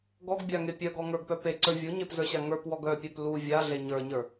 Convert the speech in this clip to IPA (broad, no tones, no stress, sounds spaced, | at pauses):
ɡ ɔ ɡ bʲ a ŋ e pʲ œ ɡ ɔ ŋ ə˞ ɡ p œ p e ǀ ə˞ vʲ u ɲ e p z ə˞ ɕ a ŋ ə˞ p w ɔ ɡ œ pʲ œ p l u vʲ a ɮ e ɲ ə˞ ɲ ə˞